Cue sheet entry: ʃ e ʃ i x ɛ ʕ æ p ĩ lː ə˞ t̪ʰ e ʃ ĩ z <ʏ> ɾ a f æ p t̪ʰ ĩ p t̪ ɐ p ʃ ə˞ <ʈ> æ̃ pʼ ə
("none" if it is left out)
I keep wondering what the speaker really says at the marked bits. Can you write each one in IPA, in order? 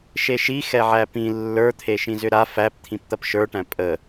ʏ, ʈ

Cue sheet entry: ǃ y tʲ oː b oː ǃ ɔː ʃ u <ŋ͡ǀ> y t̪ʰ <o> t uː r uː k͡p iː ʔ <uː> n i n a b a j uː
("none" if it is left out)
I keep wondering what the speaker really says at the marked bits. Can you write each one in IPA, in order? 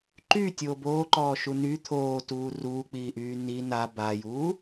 n, oː, yː

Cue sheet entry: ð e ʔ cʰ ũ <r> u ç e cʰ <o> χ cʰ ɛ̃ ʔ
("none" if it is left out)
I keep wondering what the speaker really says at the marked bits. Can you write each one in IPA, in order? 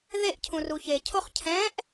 r, o

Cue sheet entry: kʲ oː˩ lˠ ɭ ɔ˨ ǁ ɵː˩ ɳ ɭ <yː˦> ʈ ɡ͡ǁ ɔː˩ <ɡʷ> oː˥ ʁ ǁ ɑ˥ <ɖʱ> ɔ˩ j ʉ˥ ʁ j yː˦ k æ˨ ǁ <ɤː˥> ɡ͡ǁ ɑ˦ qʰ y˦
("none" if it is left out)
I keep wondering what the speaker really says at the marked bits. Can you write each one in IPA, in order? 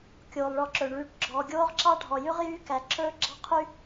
yː˨, ɡʲ, ɖʱ, ɵː˥

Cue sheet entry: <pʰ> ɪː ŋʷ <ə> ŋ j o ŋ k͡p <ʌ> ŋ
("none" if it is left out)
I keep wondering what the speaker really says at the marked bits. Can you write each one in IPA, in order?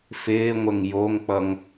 f, ə, ʌ

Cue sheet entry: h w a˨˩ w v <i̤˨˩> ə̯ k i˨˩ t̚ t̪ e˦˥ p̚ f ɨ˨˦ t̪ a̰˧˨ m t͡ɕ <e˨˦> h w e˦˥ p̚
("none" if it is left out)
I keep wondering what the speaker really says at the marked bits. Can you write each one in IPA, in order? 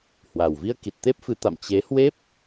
i˧, e˨˦

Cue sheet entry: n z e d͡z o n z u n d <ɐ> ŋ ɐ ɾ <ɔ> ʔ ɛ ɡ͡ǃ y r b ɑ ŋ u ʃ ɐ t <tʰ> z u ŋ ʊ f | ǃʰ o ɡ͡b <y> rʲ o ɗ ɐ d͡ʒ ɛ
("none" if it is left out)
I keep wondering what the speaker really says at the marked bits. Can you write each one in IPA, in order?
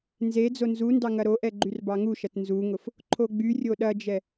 ɑ, o, n, y

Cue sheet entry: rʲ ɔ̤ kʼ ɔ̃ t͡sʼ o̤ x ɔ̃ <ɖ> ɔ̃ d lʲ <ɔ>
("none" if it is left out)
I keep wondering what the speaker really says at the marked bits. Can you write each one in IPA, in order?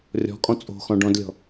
ɖ, ɔ̤

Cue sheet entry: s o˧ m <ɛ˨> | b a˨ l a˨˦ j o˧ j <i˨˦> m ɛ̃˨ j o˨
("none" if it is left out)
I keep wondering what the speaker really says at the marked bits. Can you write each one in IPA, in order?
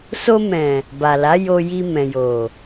ɛ̃˨, i˧

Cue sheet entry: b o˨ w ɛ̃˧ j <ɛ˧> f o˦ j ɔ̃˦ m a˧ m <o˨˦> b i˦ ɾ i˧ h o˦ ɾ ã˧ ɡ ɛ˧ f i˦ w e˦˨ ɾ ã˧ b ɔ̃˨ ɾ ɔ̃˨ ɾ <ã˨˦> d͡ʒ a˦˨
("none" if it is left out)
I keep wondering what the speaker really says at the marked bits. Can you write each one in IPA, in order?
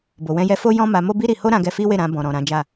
ɛ˧, o˦, ã˨˦

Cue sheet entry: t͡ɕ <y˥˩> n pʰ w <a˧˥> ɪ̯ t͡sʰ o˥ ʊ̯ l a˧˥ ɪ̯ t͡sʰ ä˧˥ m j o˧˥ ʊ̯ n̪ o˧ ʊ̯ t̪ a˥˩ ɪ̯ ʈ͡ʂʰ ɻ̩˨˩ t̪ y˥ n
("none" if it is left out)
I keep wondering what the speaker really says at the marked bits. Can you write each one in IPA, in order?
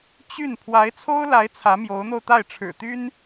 y˥˩, a˧˥

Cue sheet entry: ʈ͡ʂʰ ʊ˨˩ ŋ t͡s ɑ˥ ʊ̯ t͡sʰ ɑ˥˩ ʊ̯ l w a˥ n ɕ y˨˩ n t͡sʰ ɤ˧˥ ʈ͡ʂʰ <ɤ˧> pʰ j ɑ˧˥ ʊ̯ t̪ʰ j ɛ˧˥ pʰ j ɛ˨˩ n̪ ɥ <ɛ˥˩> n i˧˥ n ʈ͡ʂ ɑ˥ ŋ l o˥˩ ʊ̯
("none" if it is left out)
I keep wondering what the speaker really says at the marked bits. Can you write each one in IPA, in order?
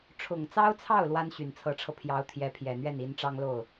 ɤ˧, ɛ˥˩

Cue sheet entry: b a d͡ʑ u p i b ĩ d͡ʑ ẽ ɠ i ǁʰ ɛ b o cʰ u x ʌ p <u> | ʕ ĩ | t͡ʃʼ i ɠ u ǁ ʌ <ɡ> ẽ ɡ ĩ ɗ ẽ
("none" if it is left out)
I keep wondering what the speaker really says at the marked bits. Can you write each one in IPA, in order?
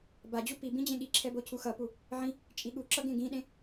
u, ɡ

